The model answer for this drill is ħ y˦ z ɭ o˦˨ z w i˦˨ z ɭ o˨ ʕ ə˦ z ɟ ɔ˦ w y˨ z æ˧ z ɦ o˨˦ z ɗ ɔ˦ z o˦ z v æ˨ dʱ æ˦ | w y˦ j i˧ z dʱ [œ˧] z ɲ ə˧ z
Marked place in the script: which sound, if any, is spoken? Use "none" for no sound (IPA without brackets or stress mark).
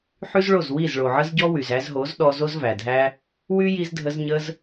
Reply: ə˧